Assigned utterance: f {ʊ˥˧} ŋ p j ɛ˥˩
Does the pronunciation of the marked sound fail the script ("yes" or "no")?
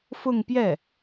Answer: no